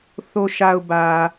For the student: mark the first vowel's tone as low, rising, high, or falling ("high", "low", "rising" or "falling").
low